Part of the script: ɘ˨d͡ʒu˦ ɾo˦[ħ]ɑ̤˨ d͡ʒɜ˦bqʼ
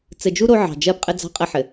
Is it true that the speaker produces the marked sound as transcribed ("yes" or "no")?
no